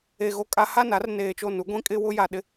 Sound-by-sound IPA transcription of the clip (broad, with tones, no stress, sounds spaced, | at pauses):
e˨ ɣ o˨ kʼ a˨ h a˦˨ n a˦ r n eː˨ t͡ʃ o˦˨ n u˨˦ ɡʷ ĩ˦ kʼ ɪ˦ w ʊ˦ j a˨ ɗ ɪ˦